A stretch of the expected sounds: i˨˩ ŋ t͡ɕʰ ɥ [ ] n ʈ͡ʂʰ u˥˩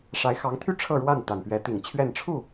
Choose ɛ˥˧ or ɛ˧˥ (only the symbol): ɛ˥˧